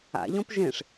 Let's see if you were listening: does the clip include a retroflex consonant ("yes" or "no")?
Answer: yes